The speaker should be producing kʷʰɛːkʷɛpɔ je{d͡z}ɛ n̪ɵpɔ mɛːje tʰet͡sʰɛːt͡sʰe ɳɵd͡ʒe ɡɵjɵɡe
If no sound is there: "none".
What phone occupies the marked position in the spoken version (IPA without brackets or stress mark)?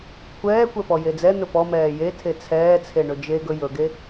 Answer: d͡z